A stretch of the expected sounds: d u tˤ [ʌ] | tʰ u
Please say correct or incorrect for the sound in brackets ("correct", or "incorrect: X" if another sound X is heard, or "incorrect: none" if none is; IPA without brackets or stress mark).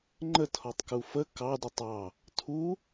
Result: incorrect: ɑ